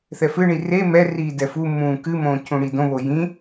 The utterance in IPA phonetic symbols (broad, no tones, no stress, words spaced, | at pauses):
θɛfɨɳi re mɛriː dɛfumːũː kɨmõː cʰũɽidõβo jĩ